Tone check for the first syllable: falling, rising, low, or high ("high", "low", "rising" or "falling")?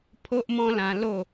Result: high